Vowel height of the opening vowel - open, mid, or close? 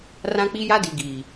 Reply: open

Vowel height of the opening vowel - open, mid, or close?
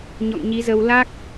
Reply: mid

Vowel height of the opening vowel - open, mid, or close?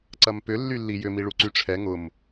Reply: open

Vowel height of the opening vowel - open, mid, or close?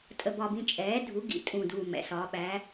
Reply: mid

